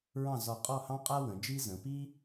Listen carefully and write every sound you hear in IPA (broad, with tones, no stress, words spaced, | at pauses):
ɹɑ̃˥˧ zɒ˧˩qʼɔ˥˧ hɑ̃˥qʼa˥ wə̃˩˧d͡ʒi˥ zə̃˩˧pi˥